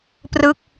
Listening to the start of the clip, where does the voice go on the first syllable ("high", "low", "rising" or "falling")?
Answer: falling